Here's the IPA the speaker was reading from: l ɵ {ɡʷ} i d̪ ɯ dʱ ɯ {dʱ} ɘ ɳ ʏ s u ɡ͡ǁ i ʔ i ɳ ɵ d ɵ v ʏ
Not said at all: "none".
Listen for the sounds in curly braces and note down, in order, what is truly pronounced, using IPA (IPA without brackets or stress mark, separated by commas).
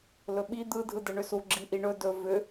ɓ, d